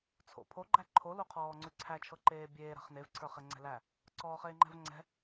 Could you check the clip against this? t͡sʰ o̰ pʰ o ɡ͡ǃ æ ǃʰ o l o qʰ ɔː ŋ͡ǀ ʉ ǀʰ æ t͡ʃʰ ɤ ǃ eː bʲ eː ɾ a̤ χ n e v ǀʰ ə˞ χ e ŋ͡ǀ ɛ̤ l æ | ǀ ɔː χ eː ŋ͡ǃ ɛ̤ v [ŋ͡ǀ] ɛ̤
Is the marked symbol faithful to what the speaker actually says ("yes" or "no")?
yes